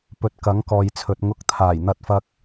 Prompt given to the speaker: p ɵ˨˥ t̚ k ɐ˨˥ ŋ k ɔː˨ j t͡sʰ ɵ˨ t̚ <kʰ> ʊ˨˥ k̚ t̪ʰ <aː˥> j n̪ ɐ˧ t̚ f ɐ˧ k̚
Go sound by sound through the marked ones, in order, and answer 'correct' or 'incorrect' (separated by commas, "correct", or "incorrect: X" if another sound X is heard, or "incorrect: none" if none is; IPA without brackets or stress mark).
incorrect: ŋ, incorrect: aː˨˩